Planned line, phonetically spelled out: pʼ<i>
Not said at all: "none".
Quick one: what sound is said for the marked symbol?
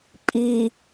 i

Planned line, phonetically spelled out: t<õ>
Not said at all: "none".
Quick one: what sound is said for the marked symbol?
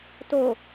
o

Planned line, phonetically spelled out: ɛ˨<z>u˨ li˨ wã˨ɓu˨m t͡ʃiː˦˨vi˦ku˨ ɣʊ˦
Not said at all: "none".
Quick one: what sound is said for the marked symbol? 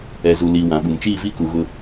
z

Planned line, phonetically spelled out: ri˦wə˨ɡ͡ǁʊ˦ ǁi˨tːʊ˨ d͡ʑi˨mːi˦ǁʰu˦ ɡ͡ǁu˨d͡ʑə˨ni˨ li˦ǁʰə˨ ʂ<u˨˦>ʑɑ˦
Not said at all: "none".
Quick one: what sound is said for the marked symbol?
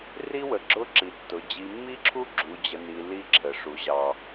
u˨˦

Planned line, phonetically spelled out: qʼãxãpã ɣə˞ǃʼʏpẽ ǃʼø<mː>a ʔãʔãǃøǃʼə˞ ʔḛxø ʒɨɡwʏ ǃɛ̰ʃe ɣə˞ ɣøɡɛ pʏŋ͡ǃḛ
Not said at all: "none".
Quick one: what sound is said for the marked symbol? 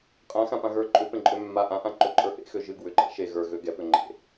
mː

